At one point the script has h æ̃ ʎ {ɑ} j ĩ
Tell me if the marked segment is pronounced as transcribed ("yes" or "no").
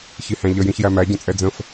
no